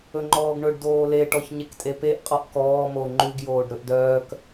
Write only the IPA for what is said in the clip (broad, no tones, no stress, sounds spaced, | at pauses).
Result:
ɵ ŋ͡ǃ ɔː ɡ ɳ ɵ ɖ d oː l e ʈ ɔ ç ɲ e k tʼ e p e ʔ qʼ ɔ ʔ k ɔː m o ŋ͡ǃ ʉ ɡ j oː ɖ ɾ ɵ ʔ d œː k